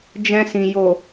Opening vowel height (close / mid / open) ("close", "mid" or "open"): mid